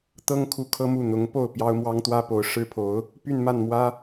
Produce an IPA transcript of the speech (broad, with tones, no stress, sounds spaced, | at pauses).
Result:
t̪ ɤ˥ ŋ kʰ u˥˩ kʰ ɤ˥ m u˥˩ n̪ ʊ˧˥ ŋ p o˥˩ ʊ̯ p j ɑ˥ ʊ̯ m w ɑ˥ ŋ t̪ w ä˥ p o˧˥ ʊ̯ ʂ ɻ̩˥ pʰ o˧˥ ʊ̯ | p y˥˧ n m a˥˩ n m w ä˥